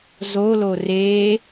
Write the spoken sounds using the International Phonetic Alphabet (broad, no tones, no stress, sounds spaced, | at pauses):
z o l o r e